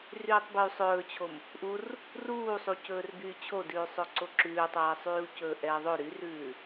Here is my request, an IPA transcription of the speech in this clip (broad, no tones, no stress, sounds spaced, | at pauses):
r yː tˤ b y sˤ ɵː t͡ɕʰ o m | ʔ u r | r uː sˤ u c ɵː r b yː t͡ɕʰ o d ʉː sˤ ɵ ǀ o ǁ ʉː tˤ ɛː sˤ yː u̯ c ɵː ʔ ɛː ðˤ ɵ ɾ y r ʉː